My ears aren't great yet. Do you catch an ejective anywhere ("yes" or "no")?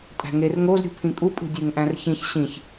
yes